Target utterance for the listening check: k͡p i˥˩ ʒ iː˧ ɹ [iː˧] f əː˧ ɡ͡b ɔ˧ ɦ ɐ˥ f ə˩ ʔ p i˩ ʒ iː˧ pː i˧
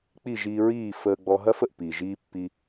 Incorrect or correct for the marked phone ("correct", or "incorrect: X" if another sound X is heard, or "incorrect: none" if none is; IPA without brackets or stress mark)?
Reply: incorrect: iː˥˩